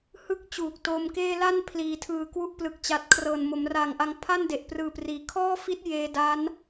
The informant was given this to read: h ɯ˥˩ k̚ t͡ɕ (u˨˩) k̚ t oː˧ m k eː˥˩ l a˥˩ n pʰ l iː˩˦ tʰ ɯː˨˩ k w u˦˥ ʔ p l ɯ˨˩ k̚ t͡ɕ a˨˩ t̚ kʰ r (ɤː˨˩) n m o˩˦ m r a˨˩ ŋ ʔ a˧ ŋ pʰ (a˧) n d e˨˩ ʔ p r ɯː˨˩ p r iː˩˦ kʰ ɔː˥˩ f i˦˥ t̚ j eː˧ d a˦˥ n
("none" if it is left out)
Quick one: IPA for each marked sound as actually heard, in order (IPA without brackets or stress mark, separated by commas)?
uː˨˩, ɤː˨˩, a˥˩